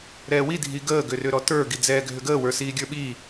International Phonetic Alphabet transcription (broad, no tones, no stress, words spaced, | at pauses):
ɾɛːwi dʱiɡəː ɡʏrʏɾɔtə˞ ɡid͡zɛːɡʱʏɡəː wə˞siːɡʲə˞ɓiː